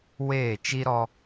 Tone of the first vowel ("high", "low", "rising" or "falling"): falling